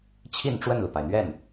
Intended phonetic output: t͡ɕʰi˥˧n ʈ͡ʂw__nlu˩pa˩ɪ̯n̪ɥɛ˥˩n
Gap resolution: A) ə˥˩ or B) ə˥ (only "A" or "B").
A